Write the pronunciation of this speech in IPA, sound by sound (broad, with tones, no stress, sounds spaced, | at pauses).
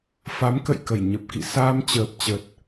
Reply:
f a˨˦ m k ə̰˧˨ j k ə˧˩ j ɲ ə˨˩ p̚ k ḭ˧˨ s aː˧ m t͡ɕ əː˨˩ p̚ t͡ɕ ə˨˩ t̚